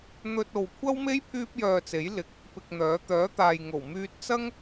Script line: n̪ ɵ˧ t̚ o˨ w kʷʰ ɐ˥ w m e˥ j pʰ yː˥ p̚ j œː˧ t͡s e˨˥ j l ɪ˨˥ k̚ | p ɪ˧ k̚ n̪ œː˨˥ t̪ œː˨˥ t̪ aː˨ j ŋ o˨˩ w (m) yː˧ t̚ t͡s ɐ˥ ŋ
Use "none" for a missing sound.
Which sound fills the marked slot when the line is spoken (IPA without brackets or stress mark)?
m